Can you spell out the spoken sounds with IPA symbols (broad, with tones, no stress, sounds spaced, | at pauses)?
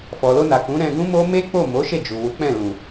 f ɔ˨ l o˧ n a˨ k ũ˨˦ ɾ ɛ̃˧ ɡ ũ˦ m o˦ m e˦ k͡p o˦˨ m o˨˦ ʃ e˦˨ d͡ʒ u˨ w u˨˦ k͡p ɛ̃˦˨ l ũ˨